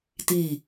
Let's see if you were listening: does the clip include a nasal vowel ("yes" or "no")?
no